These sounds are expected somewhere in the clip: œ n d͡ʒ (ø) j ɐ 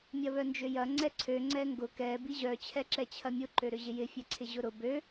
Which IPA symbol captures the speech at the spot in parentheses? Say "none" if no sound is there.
ø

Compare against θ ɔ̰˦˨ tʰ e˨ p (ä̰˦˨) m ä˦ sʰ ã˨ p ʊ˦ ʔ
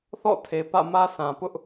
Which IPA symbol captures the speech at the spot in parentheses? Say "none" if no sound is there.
ä̰˦˨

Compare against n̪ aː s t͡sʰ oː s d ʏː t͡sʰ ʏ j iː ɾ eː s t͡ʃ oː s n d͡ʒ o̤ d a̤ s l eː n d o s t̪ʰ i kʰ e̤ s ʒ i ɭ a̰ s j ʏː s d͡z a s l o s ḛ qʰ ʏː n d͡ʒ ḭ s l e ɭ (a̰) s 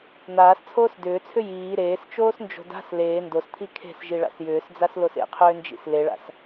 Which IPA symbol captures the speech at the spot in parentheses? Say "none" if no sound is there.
a̰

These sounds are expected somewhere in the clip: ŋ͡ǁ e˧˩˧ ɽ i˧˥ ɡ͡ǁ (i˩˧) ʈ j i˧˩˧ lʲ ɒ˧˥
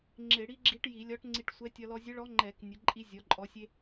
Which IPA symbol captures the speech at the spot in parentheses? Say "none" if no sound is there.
i˧˥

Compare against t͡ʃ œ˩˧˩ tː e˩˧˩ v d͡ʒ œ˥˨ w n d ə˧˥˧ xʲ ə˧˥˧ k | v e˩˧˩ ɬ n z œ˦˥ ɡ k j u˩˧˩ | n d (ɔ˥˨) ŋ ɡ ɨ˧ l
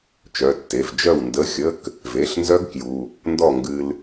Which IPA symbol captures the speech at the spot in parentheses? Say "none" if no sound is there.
ɔ˥˨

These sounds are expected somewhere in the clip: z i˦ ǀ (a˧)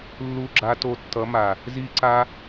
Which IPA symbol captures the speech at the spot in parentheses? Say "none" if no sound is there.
a˦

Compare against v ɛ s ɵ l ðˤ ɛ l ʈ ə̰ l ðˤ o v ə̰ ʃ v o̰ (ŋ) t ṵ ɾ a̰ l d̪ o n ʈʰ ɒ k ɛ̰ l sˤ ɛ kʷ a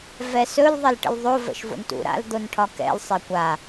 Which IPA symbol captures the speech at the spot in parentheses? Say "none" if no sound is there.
n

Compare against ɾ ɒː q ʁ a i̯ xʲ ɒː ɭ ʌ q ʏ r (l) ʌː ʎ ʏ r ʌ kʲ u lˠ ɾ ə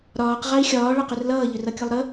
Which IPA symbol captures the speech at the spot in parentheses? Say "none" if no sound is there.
l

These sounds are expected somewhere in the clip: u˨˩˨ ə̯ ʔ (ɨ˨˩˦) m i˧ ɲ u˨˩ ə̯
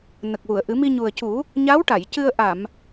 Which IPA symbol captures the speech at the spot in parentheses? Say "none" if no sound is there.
ɨ˨˩˦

